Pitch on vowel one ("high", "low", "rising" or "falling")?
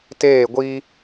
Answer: falling